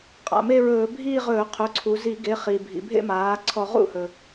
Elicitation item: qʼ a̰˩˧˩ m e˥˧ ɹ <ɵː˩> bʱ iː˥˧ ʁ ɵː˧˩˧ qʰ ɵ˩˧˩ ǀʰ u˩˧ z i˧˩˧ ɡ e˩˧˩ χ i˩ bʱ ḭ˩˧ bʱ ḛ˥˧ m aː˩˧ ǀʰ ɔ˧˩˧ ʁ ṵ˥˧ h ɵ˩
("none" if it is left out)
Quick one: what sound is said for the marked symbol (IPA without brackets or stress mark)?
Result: ɵː˧˩˧